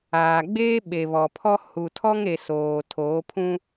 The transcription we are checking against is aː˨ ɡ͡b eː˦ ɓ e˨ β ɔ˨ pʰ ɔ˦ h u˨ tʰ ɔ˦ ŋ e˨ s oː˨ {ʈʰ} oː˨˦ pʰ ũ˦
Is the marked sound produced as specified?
no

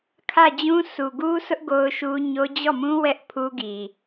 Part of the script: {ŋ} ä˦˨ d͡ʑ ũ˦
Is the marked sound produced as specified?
no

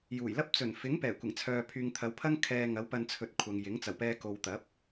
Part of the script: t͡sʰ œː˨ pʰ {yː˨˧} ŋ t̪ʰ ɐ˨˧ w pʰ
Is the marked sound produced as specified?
no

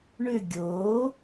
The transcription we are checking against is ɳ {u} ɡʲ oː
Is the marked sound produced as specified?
no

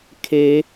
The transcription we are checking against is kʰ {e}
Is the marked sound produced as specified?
yes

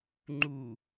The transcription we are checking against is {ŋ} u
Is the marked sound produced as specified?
no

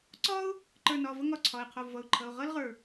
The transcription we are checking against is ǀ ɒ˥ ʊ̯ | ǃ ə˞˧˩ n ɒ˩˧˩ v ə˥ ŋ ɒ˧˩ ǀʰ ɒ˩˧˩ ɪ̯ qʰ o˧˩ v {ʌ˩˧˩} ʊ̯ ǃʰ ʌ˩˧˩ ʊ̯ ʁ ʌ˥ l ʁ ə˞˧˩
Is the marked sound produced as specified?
yes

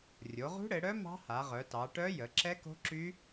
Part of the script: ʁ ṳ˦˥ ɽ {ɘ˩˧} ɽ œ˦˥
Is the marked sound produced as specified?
yes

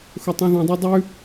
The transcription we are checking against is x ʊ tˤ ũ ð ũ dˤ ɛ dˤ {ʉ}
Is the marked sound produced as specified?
yes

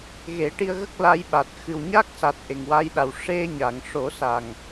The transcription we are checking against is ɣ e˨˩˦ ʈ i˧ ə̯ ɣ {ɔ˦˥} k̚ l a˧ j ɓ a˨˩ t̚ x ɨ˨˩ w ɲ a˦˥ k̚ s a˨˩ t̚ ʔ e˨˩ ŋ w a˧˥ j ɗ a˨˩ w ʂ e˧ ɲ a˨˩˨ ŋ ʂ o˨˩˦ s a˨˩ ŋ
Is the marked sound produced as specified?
no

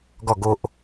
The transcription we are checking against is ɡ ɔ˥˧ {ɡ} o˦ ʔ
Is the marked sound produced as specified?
yes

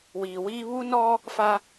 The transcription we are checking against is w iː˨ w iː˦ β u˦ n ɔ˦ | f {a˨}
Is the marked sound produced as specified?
no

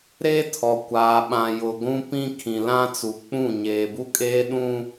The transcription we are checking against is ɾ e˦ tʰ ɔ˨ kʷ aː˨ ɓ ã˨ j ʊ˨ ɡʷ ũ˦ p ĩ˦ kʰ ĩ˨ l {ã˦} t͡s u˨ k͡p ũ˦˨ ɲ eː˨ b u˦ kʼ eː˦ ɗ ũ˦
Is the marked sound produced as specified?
yes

